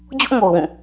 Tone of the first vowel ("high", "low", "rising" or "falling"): high